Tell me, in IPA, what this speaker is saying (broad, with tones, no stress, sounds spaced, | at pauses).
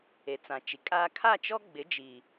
e˨ t͡s ã˨ t͡ʃ i˨ kʼ aː˦ kʰ a˦˨ t͡ʃ ɔ˦ ɡ͡b ɪ˨˦ d͡ʒ i˨